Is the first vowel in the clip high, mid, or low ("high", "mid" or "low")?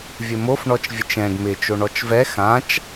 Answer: mid